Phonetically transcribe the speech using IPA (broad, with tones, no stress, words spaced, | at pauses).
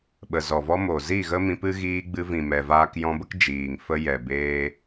ɓə˨ zɔ˨vɔ˧mo˨zi˦˨ ɣə˦mĩ˧pɨ˦ ɣiː˧ɡ͡bɨ˧vĩ˨ mɛ˨vaː˧kjɔ̃˧ bə˦k d͡ʒiː˨ŋ fə˧jɛ˨ beː˦